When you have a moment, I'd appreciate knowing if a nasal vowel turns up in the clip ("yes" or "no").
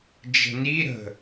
no